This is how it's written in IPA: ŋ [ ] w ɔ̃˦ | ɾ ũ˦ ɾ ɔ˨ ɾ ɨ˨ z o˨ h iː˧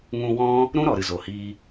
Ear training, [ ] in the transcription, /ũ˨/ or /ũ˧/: ũ˧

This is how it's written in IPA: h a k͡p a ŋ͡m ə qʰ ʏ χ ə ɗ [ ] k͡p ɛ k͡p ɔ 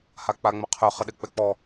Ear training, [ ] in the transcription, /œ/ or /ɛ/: ɛ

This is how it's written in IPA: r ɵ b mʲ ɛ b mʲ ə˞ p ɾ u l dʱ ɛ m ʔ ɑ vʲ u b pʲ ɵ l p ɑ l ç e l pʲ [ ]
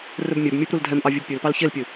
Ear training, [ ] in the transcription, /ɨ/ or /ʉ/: ɨ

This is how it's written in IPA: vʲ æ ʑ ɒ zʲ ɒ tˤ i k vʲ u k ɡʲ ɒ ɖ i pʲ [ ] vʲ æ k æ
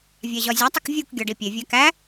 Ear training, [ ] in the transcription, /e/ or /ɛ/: e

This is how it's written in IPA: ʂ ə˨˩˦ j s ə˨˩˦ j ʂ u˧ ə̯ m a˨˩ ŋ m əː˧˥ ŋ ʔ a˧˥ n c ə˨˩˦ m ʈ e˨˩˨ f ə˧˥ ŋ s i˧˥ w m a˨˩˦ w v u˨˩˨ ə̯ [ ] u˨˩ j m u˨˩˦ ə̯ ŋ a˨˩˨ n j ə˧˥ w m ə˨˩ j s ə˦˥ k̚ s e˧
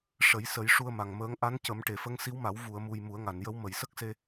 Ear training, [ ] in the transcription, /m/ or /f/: m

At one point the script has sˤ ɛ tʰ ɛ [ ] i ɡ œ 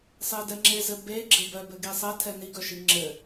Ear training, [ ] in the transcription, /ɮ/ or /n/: n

